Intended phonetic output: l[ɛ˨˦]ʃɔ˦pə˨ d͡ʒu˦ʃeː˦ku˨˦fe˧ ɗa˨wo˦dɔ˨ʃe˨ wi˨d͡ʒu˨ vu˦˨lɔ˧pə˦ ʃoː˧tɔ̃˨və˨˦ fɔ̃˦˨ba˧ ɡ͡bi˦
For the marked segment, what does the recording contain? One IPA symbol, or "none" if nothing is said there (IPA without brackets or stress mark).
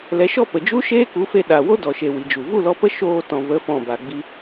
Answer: ɛ˨˦